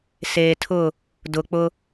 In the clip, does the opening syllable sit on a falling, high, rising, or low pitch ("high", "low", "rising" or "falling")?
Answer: low